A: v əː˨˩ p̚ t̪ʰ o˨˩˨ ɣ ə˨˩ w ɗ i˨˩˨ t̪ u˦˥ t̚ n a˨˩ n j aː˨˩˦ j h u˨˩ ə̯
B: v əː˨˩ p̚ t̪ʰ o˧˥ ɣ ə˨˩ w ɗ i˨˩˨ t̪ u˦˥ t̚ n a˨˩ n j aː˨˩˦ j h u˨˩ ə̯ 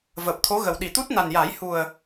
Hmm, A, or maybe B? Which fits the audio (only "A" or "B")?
B